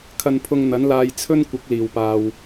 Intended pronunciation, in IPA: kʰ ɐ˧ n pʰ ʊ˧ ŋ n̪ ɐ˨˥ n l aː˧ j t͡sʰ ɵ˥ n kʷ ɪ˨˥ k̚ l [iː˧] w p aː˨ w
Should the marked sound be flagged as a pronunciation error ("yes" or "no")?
yes